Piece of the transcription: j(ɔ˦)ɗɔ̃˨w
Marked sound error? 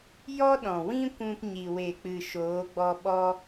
no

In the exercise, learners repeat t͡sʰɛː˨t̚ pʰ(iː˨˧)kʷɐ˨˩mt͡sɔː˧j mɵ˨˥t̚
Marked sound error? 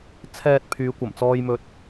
yes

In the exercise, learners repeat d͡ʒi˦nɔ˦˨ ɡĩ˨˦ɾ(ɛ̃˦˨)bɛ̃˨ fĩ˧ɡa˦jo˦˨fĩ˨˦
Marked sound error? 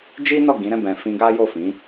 no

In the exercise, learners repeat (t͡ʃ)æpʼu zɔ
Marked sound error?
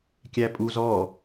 yes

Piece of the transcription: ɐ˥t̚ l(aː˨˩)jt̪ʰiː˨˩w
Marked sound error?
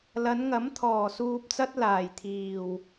no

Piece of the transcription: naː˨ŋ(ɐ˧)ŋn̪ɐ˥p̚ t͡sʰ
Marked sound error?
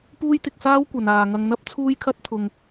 no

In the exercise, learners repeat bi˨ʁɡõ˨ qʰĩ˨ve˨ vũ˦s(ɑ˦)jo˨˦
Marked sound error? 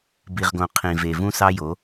no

